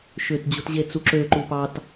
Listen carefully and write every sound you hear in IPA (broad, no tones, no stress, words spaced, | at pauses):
ʃʏtd͡ʑut ʑet͡suǁøǃu pɑt